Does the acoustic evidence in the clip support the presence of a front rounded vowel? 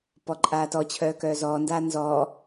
yes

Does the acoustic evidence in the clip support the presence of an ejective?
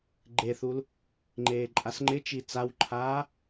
yes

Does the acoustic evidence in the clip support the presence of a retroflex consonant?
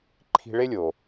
yes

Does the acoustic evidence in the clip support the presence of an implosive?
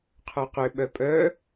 yes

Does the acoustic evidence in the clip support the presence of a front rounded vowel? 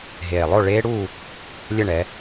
no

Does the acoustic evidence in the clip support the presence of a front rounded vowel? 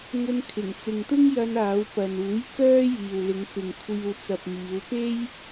yes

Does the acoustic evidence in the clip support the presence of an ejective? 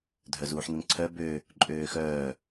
yes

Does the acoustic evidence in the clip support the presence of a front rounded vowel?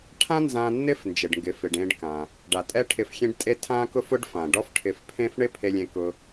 no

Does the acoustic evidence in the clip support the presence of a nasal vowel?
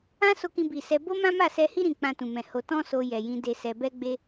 yes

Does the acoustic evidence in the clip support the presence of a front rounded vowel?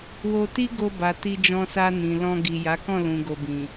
no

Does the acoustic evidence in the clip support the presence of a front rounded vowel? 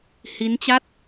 no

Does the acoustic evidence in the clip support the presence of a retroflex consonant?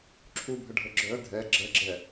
yes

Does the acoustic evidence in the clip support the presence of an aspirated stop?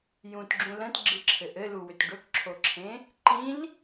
yes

